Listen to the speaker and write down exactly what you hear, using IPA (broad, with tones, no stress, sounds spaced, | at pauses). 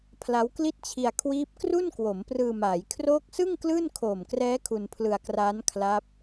pʰ l a˦˥ w k l i˥˩ t̚ t͡ɕʰ i˧ a̯ kʰ w iː˦˥ p̚ k r u˥˩ n k w o˩˦ m p r ɯː˧ m aː˩˦ j kʰ r oː˦˥ k̚ s ɯ˥˩ ŋ k l ɯː˥˩ n kʰ oː˨˩ m k r ɛː˦˥ kʰ u˧ n pʰ l ɯ˧ a̯ k r aː˦˥ n kʰ l a˦˥ p̚